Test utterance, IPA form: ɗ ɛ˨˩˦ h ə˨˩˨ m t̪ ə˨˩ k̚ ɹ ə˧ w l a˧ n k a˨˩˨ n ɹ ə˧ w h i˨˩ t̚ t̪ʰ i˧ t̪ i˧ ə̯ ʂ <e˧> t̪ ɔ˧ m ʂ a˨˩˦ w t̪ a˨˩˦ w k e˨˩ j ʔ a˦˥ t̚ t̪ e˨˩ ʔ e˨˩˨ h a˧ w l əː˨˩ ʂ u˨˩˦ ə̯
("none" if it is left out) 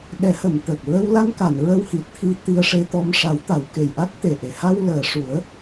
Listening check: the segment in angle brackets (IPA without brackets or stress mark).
e˧